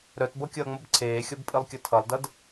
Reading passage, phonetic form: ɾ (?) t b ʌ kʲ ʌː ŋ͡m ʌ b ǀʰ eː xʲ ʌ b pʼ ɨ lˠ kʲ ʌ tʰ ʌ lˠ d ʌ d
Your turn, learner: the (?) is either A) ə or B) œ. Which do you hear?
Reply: B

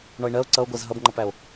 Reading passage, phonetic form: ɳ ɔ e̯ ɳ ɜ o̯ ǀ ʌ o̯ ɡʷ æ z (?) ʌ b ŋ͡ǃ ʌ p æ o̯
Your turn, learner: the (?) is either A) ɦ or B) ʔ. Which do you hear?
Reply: A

